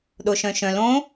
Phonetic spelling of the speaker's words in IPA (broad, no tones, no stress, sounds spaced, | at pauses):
ɗ o ʃ œ̃ ʃ œ̃ l õ